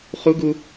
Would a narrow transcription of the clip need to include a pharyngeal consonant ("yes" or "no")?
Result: no